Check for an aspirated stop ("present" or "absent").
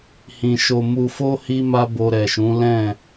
absent